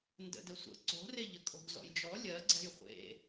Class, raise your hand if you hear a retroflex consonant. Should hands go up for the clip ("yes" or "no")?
no